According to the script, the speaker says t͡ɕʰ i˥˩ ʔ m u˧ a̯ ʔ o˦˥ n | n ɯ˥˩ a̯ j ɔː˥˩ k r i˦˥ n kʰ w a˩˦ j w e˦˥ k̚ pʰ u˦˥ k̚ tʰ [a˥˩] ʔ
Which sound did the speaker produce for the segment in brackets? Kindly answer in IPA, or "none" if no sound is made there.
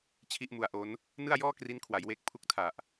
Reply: a˨˩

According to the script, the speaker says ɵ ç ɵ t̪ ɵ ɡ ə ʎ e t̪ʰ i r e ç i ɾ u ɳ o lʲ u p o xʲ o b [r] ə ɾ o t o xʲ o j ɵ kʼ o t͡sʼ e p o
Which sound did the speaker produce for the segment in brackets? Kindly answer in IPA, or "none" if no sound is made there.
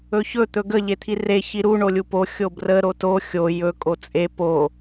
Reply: r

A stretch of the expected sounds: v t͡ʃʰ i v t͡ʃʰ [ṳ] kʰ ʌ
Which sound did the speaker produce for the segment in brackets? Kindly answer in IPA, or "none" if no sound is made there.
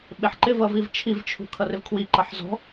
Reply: ṳ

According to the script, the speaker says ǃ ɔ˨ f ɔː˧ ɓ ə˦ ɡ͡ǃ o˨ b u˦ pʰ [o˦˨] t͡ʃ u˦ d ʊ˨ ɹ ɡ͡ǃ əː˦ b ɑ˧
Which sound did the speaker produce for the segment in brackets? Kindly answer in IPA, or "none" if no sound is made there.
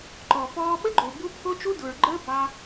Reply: o˦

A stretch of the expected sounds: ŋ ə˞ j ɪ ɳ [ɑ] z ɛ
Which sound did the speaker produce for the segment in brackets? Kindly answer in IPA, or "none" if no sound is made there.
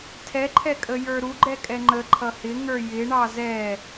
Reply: ɑ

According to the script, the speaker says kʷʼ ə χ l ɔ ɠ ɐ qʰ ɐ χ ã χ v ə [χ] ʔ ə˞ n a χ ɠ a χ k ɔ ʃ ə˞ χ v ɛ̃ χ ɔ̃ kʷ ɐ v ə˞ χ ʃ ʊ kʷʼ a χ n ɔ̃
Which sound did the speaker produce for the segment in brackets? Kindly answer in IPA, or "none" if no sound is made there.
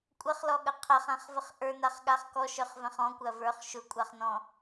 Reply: χ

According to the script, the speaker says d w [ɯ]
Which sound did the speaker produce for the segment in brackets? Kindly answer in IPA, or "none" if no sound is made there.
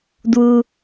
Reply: u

